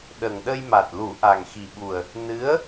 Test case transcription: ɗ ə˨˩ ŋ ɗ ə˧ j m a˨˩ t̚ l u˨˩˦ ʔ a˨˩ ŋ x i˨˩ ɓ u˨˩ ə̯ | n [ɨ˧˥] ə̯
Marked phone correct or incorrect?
correct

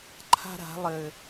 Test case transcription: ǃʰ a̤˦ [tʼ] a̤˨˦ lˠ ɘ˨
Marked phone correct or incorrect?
incorrect: ɾ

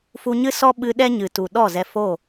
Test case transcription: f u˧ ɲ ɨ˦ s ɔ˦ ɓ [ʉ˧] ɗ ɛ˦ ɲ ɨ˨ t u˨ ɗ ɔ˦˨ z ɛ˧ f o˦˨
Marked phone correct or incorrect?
incorrect: ɨ˧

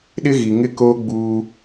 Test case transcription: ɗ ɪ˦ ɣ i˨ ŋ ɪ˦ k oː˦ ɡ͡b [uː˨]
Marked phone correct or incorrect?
incorrect: uː˦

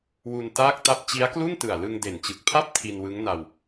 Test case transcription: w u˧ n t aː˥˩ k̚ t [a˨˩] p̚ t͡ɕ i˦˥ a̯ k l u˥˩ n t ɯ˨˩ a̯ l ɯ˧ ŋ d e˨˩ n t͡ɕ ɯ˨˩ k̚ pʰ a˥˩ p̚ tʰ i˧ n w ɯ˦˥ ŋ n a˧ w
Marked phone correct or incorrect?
incorrect: a˥˩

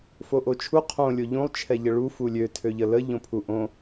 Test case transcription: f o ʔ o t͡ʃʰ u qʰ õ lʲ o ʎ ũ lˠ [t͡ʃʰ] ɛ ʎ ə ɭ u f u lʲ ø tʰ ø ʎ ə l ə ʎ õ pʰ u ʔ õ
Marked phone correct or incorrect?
correct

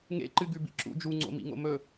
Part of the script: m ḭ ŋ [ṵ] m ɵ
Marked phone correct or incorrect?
incorrect: o̰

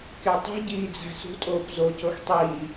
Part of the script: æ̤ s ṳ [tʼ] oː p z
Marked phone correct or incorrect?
correct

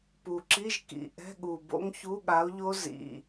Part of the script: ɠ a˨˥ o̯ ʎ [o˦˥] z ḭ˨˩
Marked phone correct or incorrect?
correct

